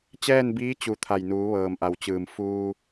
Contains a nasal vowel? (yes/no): no